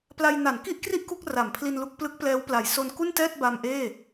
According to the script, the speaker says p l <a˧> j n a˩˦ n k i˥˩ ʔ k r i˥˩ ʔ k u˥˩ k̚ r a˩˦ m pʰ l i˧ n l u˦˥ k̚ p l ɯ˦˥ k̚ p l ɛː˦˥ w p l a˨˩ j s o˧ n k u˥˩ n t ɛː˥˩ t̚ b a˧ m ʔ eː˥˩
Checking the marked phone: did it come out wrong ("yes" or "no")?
no